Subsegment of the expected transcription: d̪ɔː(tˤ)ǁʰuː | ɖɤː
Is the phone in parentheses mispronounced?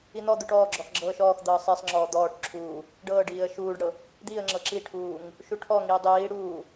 yes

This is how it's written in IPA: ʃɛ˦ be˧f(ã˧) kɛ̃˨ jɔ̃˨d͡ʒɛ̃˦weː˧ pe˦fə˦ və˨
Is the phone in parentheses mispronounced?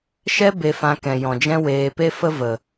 no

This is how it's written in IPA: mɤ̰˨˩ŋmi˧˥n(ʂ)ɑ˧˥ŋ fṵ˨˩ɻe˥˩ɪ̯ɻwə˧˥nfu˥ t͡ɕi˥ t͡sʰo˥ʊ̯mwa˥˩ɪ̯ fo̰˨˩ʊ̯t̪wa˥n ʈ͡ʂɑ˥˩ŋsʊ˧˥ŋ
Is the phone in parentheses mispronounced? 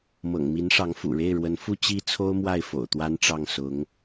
no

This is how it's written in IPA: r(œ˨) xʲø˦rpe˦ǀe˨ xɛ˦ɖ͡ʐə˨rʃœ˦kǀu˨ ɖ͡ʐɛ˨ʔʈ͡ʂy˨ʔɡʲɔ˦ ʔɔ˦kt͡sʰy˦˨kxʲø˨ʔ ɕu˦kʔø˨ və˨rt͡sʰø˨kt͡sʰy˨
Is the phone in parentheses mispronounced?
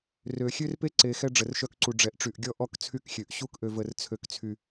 yes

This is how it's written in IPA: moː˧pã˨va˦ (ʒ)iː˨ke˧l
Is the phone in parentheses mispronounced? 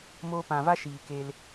yes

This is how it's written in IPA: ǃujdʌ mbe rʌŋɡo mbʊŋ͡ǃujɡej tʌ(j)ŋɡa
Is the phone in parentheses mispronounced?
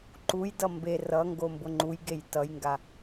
no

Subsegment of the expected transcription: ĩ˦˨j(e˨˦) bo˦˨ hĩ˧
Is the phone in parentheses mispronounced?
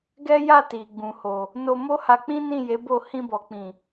no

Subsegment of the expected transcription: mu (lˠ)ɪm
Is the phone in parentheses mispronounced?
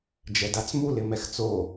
yes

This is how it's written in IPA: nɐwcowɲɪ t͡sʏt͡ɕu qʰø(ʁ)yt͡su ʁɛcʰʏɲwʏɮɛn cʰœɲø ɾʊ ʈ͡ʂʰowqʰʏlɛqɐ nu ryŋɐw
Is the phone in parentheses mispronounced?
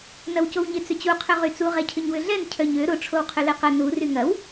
no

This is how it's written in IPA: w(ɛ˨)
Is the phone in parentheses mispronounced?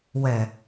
no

